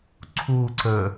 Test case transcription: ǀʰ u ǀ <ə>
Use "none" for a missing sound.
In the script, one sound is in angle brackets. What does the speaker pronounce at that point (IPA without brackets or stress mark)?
ə